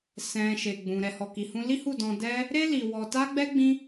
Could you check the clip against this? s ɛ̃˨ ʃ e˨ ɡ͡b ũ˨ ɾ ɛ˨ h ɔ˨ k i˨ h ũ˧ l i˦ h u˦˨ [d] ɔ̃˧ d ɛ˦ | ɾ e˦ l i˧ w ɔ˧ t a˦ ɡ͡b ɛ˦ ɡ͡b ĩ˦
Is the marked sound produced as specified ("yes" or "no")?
yes